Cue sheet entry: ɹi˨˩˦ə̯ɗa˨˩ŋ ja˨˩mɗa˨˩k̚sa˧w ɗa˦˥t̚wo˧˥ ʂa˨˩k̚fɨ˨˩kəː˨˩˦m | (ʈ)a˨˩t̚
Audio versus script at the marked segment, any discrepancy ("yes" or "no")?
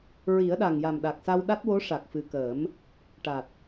no